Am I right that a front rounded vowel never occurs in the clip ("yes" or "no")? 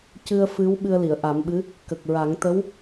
yes